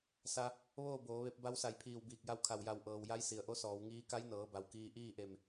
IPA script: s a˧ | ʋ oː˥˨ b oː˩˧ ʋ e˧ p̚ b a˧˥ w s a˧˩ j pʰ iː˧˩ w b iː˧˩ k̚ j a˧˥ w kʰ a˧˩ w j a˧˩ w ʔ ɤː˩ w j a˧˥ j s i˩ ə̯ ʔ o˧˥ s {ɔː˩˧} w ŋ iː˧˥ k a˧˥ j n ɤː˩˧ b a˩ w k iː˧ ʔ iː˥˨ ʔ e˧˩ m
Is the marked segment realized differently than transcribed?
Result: no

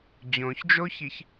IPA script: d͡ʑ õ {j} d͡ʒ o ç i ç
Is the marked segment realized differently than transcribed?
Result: yes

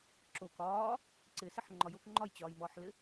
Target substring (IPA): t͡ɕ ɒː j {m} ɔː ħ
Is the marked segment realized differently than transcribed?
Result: no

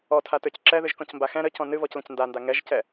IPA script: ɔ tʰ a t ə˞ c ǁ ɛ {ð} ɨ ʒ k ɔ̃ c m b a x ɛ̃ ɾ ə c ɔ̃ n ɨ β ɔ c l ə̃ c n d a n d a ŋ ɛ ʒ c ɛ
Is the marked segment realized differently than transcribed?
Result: no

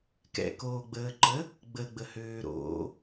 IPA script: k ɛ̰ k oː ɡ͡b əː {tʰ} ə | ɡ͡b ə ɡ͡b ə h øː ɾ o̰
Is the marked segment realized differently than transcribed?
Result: yes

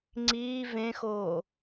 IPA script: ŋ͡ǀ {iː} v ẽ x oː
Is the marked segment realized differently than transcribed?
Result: no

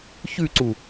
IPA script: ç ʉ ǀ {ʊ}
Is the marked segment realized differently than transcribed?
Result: yes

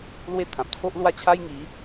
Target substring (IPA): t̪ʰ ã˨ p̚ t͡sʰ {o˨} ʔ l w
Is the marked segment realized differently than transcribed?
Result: yes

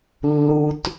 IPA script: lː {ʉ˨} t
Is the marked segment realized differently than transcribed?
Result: yes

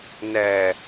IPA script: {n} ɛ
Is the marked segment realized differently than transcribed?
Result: no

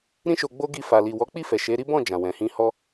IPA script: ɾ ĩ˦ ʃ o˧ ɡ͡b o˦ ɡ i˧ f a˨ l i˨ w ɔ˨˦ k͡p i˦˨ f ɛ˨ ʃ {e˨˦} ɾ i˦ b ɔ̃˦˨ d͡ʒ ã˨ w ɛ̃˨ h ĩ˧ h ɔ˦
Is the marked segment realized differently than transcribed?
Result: no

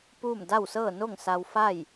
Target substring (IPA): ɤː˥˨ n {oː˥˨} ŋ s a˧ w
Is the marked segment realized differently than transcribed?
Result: yes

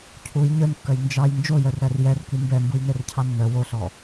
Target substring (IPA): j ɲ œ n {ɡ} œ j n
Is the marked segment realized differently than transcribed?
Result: yes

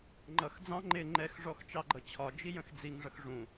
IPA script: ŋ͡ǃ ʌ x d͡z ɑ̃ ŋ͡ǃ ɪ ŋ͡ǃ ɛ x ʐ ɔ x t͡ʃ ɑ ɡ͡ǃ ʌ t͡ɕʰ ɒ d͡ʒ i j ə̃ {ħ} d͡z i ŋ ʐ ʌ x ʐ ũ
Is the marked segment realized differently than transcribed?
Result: yes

